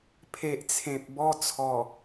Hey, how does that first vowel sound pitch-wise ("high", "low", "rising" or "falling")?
low